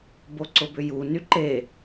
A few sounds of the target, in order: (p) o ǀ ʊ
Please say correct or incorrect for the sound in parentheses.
incorrect